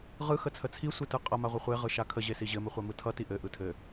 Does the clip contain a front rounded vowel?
no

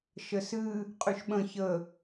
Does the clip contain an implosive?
yes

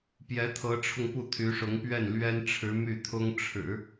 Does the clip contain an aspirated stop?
yes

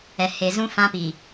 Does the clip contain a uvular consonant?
no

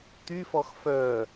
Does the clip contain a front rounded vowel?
yes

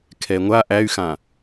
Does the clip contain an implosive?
no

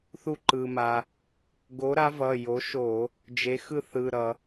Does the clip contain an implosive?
no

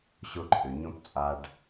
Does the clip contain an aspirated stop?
yes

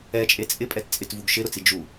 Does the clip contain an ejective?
yes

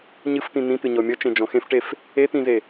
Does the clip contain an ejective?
no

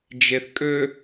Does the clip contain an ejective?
yes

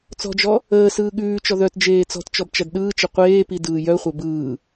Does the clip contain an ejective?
no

